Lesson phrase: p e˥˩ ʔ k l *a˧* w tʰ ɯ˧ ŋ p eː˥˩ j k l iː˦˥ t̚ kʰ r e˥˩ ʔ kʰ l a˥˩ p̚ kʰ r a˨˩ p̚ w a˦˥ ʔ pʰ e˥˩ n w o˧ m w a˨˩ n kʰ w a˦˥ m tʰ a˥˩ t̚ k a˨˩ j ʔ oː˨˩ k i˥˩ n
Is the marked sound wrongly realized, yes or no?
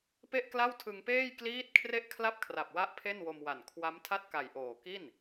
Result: yes